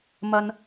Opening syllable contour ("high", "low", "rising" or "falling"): high